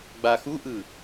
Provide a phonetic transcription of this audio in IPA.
ɡ͡b a x u ʔ ɯ

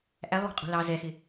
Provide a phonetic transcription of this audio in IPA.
ʔ æ lˠ w ɑ̤ qʼ ṳ l ɑ z ɛ x ɪ

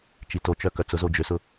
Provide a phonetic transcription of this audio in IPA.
t͡ʃ i t o t͡ʃ œ k œ t͡s ʊ z o d͡ʒ ø s ʊ

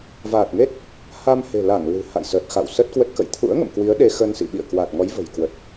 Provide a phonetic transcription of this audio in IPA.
v aː˨˩ t̚ ŋ e˦˥ t̚ | h a˧ m h e̤˨˩ l a˧˩ ŋ l ɨ̤˨˩ h a̰˧˨ j s əː˨˩ t̚ x a̰˧˨ w s ə˦˥ t̚ k w ə˦˥ t̚ k ə̰˧˨ j t̪ʰ ṵ˧˥ ə̯ ŋ ə̰˧˨ m k w i˨˦ ə̯ ɗ e˧ x ə˧ n s ḭ˧˨ ɓ ḭ˧˨ ə̯ k w a˨˩ t̚ ŋ ɔ˨˦ j v ə̤˨˩ j k w ə˨˩ t̚

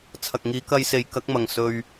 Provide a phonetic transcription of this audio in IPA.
t͡sʰ ɐ˨ k̚ ŋ iː˨˧ k ɐ˧ j s e˨˧ j k ɐ˨˥ k̚ m ɐ˨ ŋ s ɵ˧ ɥ

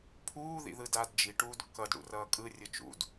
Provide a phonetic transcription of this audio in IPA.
pʰ uː ð ḭ ð ɯ d aː d d͡ʒ i ʈ uː d kː ʌ d ɽ ṵ r ʌː kʼ ɯ rʲ ɯ t͡ʃ ṵ d

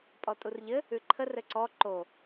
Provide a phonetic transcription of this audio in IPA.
pʼ ɔ tʼ u r ʎ ɘ | ʉ ǃʰ ə r ɘ ǀ ɔ ǃ o

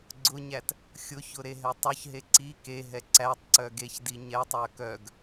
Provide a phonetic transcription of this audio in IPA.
ɡ͡ǀ ʊ ɲ æ t | xʲ ʊ ç ʊ ɾ e ɦ ɛ tˤ ʊ ç ɦ e ǀ i k e ɦ ɛ ǀ æ tˤ ǀ œ ɡ e ç d i ɲ ɛ tˤ œ k œ ɡ

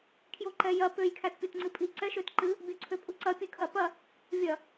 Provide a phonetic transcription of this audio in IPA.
kʰ j o ǃ ɛ j ɐ p ø j kʰ æ t pʲ o t ŋ͡ǀ ɨ pʼ i ǀ ɛ ʃ ø t ǃ ɨ | bʲ o ǀʰ ø pʼ u ǀ ɐ pʲ ɨ kʰ ɐ p ɐ | vʲ ɐ

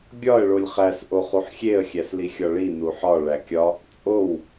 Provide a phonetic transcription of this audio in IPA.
ɡʲ ɒ ə̯ ɭ o lʲ χ æ s ʔ o χ u ħ xʲ e ə̯ xʲ æ s l i xʲ ɒ ɭ i n u ħ ɒ ɭ æ kʲ ɒ | t͡sʼ o w

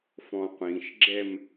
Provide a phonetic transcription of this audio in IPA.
f ɔ̃ qʷ ĩ ʃ ɡ͡ǁ ɛ m

